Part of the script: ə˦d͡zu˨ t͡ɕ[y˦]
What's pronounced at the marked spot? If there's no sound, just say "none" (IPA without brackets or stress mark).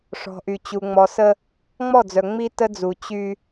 y˦